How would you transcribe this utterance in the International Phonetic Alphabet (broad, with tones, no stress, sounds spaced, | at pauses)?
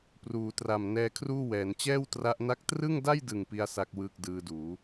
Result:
p r uː˩˦ t r a˨˩ m n ɛː˧ kʰ r uː˥˩ w ɛː˩˦ n t͡ɕ ɛː˥˩ w t r a˦˥ ʔ n a˥˩ k̚ t r ɯ˥˩ ŋ d a˥˩ j d ɯ˨˩ ŋ p i˥˩ a̯ s a˥˩ k̚ w ɯː˥˩ k̚ d ɯː˧ d uː˩˦